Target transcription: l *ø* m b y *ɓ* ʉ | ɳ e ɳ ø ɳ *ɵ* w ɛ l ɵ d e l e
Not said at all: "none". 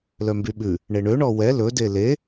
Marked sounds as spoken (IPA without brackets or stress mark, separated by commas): œ, ɓ, ɔ